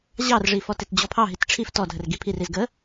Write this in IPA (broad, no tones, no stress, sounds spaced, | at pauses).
ʑ ɑ r ʐ i f ɔ t e t d͡ʑ ɔ pʰ ɑ ɦ i t ʈ͡ʂʰ i f t ɔ dʱ ə r ɡ i pʰ i r i z ɡ ə